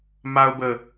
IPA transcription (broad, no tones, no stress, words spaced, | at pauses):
maʊ̯bə